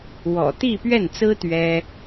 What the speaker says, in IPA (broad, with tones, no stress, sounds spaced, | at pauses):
w ɔ̰˨˩ t̪ i˥˧ p ɥ ɛ˥˩ n t͡s ɹ̩˥ t̪ ɥ ɛ˥